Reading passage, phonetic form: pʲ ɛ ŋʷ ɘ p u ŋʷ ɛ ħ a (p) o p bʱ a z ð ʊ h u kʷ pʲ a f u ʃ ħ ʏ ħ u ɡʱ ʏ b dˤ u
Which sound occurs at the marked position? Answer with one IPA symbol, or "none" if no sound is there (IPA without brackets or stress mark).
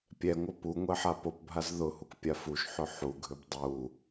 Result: p